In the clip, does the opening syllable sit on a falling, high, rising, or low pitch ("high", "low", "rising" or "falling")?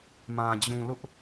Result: low